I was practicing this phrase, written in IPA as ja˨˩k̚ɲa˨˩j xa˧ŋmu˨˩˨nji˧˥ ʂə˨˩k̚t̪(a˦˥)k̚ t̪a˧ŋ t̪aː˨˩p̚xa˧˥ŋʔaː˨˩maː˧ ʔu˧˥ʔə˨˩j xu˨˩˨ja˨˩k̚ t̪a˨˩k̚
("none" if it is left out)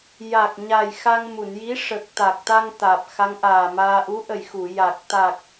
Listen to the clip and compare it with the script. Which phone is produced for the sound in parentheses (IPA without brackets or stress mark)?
a˨˩